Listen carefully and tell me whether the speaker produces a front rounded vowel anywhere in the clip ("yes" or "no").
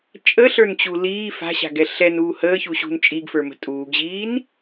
no